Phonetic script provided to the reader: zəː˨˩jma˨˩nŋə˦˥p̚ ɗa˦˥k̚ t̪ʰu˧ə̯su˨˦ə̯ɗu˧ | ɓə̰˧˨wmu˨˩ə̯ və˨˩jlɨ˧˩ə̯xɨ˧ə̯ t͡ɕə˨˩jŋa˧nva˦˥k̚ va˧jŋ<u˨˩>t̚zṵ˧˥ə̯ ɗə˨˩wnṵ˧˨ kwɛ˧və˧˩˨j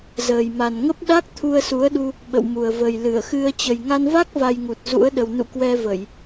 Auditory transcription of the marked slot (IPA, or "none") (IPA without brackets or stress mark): u˨˩